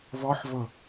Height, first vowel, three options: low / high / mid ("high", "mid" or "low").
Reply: mid